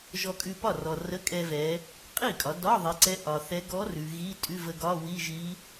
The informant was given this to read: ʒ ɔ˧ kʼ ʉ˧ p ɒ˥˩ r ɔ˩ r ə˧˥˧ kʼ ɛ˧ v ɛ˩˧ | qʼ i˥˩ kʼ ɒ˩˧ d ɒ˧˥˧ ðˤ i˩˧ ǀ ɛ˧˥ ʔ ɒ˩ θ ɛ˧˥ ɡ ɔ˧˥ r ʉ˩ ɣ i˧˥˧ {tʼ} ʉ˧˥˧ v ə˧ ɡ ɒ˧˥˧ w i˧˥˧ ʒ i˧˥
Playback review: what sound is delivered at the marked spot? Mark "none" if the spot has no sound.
tʼ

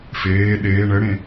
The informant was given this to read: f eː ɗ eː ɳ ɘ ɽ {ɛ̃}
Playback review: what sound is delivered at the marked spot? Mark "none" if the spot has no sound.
ẽ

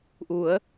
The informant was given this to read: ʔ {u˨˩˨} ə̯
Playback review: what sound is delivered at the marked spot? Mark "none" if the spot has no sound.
u˨˩˦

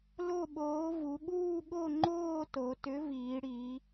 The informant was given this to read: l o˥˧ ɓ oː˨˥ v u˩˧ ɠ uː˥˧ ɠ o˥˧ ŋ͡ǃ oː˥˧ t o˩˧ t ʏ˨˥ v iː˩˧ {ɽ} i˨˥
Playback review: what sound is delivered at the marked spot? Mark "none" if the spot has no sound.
ɽ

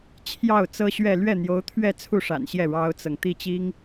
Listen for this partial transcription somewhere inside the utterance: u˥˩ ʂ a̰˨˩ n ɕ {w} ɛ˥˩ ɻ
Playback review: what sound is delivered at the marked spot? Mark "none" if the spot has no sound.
j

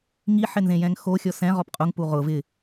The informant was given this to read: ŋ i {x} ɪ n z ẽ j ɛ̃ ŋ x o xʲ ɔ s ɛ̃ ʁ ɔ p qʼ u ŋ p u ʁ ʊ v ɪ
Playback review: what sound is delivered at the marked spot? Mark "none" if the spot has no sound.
ħ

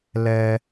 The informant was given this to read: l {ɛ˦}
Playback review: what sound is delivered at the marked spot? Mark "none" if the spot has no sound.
ɛ˦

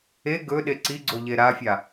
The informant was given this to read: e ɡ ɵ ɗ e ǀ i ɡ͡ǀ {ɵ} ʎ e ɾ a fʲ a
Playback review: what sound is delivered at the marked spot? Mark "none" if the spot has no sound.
o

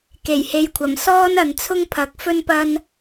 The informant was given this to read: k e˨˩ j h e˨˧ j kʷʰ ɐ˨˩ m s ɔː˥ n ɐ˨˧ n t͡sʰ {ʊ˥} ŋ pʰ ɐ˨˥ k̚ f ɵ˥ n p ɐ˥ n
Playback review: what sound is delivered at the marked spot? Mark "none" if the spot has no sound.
ʊ˥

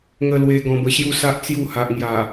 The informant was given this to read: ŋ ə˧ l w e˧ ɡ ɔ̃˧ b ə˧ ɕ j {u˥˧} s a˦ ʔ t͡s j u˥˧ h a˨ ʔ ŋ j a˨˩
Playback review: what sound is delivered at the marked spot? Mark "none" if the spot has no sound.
u˥˧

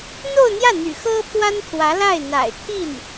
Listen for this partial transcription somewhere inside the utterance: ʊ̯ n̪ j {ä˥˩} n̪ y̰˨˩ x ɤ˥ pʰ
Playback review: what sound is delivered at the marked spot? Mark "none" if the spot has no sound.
ä˥˩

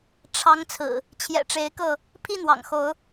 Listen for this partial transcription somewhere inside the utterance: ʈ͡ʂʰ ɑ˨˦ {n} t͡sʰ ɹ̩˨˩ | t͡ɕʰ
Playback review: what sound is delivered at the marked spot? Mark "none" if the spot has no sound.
ŋ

